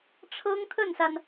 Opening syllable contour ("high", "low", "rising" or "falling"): high